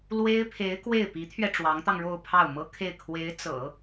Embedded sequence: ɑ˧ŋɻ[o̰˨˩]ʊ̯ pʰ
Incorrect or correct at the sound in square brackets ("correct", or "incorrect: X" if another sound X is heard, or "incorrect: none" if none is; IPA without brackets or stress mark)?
incorrect: o˥˧